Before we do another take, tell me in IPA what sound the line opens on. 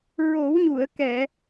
ɹ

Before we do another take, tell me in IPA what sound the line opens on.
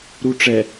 ɾ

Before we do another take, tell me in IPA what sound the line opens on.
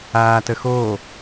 aː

